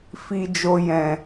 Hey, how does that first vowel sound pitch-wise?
low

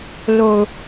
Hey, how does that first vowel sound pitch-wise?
low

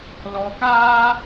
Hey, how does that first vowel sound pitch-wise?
low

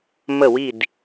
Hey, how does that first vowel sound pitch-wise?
falling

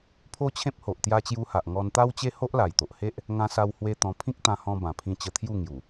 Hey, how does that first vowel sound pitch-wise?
high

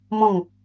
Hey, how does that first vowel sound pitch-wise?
falling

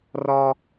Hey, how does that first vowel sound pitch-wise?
high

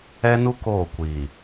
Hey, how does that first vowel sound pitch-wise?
high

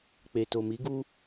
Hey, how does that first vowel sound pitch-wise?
low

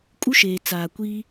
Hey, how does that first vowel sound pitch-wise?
high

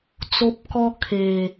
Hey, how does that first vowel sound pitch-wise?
high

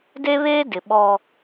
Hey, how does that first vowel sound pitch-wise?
high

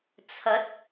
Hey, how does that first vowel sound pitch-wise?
rising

